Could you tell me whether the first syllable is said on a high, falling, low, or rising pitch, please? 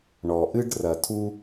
low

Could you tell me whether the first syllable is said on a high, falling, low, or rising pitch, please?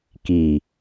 low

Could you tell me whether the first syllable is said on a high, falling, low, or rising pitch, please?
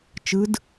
rising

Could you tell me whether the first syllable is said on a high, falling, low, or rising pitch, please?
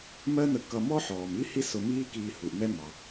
high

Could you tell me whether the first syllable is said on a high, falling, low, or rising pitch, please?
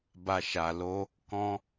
low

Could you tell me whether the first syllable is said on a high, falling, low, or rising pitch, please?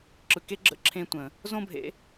low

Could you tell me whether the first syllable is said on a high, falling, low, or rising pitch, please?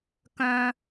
high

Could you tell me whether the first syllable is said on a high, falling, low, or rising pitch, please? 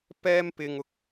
high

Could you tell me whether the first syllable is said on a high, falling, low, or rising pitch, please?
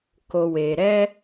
low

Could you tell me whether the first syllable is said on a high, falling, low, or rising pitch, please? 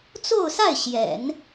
falling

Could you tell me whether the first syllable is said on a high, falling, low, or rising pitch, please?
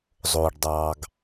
low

